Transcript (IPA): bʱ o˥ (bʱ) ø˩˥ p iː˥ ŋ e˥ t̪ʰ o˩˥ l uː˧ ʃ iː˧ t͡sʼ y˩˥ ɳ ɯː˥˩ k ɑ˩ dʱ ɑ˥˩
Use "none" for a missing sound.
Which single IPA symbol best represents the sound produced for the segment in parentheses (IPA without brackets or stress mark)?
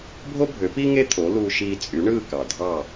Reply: bʱ